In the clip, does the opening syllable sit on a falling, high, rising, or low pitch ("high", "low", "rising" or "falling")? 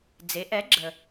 rising